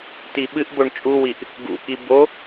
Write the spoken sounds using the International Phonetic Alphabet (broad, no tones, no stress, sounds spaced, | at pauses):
t i ɓ ɨ ʔ b o ɳ t͡ʃʼ u w i ʔ | ɡ ṵ k i b o